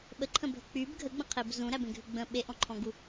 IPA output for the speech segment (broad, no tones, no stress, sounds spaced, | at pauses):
ɓ ə ǃʰ ə̃ bʱ ə k͡p y b ɡʱ ə ɡ͡b ə̃ qʰ e b z ũ ɾ æ b ẽ ɡʱ ʉ ɡ͡b ə̃ ɓ e ʔ ɔ̃ ǃʰ ɔ̃ ɡ u